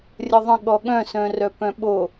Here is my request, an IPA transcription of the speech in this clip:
rʲəðˤə̃ ɠɔɠœ̃ sœ̃rœpœ̃ɓo

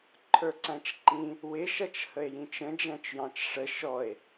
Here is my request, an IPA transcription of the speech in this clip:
ǃʰə˞ǀæ̃t͡ʃǃĩ | wɪ ʃʌt͡ʃhəe̯jĩt͡ʃə̃ d͡ʒæ̃t͡ʃjɑ̃t͡ʃʂə ʃɔe̯

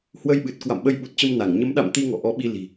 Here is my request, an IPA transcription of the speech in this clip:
hwə˧jɓɨ˨˩t̚ kwa̰˧˨mɓə˧jɓu˨˩t̚t͡ɕə˧m na˧˩ŋ ɲə˨˦mɗa̰˧˨m t̪i˧ŋɔ̰˧˨ ʔɔ˨˦ɓi˧ li̤˨˩

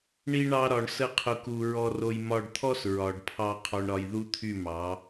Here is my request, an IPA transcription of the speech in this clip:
ɳi˧ɳɑ˧ɾɒ˨ɳ sə˦qʰʊ˧ku˧ ɹɔ˧ro˧j mɒ˧ɖt̪ʰɔ˦s ɹɒ˨ɖpʰɑ˧ qʰɔ˧ɳɾɒ˧j ðu˦t̪ʰy˦˨mɑ˨˦

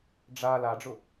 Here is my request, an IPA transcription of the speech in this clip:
ɖ͡ʐa laɖ͡ʐʊ

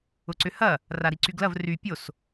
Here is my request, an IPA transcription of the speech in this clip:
ʊǀʏhɐ | raɾiǀyɡlɐv ry pʲos

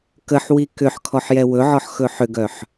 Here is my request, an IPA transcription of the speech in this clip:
kəħwi kʏħ kʰɔħjɛwɵʕɔħ xɵħʏɡœħ

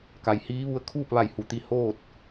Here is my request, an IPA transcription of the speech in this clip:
ka˩jhiː˧˥ʋu˧˥ə̯ kʰuː˥˨p̚ʋa˧˩jhu˩˧t̪i˧˩ hoː˥˨t̚

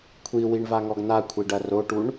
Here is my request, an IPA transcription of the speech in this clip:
kʷʰiwiɳvaŋɔɡ n̪akʷʰiɖɐ roʈuɳ

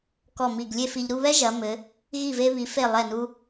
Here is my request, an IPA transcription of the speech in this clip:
kɔ˧˩mi˧˩ɡlʲe˥˧fi˧ʎ ɾu˥˧βɛ˥ ʒɐ˩˧mɘ˩˧ | ɣi˧˩ve˧βi˩˧ fe˧˩lˠɛ˧˩nu˧

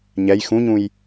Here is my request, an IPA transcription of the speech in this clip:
ɲɛj xũɲũj

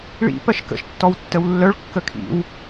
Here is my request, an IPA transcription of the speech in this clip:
ɭḭ pɜʃkə̰ʃ tːɔwtːəwlːœɭ kːəkʰḭw

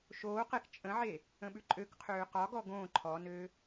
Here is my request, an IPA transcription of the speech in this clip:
ʃoːqɛk t͡ʃʼə̃ʕe | ə̃ɓʉǃʼøkqʰøː qɒɡɔ ɡõː ǃʰɔnø

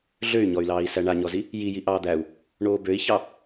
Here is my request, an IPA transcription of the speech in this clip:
ɮøy̯ɲɔy̯lɑːi̯ sæɳaɲɔzi | jiji ʔɑːd̪æu̯ | ɳoːbøi̯çɑ

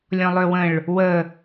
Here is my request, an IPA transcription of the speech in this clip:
lʲɔ̃lˠøwə̃ɭ | wə

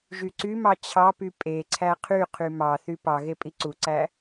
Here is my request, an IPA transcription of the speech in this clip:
ʒyǀymɑ t͡ɕʰɑpy pʼe ǀʰæqʰyqʰy mɑθy pɑɣe pʼiǀuǀæ

